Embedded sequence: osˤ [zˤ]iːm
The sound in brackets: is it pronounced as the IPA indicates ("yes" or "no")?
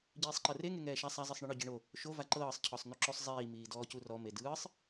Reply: yes